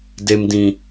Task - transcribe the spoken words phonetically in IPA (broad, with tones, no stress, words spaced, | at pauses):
de˨mdĩ˨